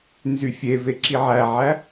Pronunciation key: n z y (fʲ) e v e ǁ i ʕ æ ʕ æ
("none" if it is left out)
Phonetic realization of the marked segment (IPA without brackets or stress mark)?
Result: fʲ